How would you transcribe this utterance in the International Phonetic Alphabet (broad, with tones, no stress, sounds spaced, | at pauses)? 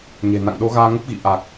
ɲ e̤˨˩ n a̰˧˨ ŋ ɗ o˨˦ ɣ aː˧ ŋ ə˦˥ p̚ ɣ ḭ˧˨ ʔ a˨˩ k̚